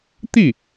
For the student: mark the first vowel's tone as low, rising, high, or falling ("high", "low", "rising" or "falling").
falling